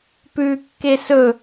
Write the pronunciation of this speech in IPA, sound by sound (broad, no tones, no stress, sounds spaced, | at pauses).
p ʉ kː e s ɵ